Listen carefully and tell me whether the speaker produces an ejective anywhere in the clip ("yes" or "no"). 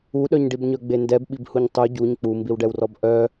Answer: no